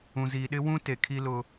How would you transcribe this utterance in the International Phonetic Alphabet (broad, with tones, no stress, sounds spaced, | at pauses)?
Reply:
ũ˨ z iː˨ ɗ ɪ˦ w ũ˦ t e˨ kʰ i˦ l ʊ˦